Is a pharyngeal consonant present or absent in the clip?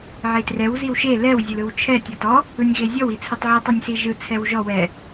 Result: present